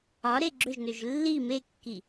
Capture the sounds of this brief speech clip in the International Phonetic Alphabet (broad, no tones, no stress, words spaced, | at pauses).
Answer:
ɒ ɾeɡ͡ǁøʒnøʒ lːi mekːi